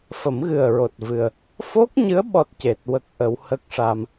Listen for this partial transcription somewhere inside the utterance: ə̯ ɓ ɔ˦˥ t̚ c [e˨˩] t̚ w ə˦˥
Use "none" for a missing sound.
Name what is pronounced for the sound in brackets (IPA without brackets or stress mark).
e˨˩